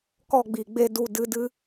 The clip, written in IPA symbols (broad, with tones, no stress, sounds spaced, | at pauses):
k ɔ˦˨ ɡ͡b i˨ ɡ͡b e˧ d u˨ d ɨ˧ d ɨ˦